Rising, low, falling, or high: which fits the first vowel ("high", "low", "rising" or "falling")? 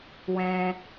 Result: high